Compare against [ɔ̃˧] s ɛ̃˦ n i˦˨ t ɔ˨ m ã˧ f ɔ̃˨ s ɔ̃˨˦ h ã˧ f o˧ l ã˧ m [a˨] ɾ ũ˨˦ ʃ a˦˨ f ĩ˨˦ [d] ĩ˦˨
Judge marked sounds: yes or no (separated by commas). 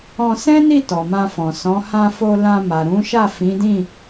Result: yes, yes, yes